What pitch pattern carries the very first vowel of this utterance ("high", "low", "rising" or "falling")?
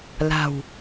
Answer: low